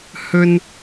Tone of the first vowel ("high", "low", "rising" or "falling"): high